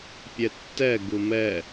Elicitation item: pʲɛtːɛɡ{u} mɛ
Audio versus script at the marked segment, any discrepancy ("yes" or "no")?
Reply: no